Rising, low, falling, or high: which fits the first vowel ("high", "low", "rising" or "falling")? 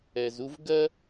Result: low